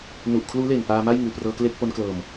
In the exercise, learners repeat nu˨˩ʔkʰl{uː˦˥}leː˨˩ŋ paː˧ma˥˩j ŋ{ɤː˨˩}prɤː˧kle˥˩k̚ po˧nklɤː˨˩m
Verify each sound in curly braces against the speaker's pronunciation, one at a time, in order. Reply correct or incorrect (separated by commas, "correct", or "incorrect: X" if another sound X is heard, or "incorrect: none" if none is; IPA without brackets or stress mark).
correct, incorrect: ɯː˨˩